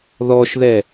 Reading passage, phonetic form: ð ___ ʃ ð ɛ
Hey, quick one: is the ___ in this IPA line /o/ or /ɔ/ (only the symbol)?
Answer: ɔ